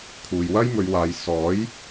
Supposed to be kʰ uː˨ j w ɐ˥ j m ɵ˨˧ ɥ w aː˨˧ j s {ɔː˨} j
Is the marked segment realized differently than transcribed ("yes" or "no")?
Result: yes